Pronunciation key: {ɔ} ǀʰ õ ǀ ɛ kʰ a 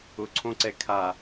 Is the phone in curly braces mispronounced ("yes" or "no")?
yes